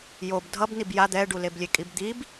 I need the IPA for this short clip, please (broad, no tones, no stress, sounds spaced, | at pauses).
j o b dʱ ʌ b n i b j a d̪ ɛ ɖ u l e b lʲ e kʼ i b d̪ i b